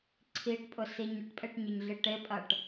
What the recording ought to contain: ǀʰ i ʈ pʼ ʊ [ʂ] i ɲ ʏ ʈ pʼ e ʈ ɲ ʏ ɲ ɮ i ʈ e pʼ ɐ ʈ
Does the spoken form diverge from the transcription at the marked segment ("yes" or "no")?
yes